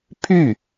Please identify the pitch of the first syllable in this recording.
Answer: falling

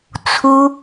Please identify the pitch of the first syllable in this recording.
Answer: high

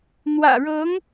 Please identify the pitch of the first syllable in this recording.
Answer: low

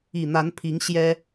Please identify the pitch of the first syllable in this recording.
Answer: low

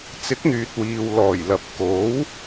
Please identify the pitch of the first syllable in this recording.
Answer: rising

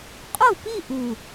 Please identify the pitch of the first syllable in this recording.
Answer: falling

